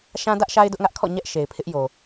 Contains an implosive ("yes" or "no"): no